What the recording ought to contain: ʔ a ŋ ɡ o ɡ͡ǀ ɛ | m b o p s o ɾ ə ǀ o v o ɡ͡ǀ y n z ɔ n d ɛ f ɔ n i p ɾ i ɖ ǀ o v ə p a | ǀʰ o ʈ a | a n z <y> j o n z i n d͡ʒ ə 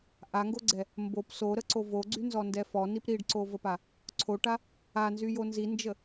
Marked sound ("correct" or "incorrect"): correct